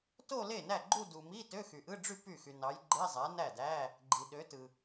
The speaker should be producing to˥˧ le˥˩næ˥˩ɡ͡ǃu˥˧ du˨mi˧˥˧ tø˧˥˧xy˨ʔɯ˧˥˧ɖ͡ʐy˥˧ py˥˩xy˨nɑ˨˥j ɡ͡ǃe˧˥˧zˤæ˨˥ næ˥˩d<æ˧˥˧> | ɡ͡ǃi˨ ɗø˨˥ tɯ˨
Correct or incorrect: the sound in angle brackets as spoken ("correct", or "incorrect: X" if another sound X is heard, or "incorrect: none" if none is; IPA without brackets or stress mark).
correct